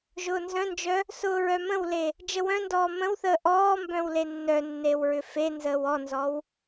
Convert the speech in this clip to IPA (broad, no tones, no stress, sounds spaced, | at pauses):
ʒ ʊː n z œ̃ n d͡ʒ œ | s ʊː ɹ œ m ə̃ w l e | d͡ʒ ə w œ̃ n d ɔː m ə̃ w θ əː ʔ ɔː m b œ̃ w l e nː œ nː e w ɹ ʏ f e n z əː w ɔ n z ɔ w